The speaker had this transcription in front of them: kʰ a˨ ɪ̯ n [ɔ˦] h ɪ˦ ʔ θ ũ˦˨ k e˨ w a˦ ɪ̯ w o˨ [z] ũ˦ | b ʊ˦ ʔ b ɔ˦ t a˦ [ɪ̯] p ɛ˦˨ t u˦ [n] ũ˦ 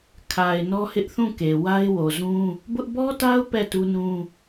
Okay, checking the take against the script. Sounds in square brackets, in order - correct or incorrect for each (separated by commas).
correct, correct, incorrect, correct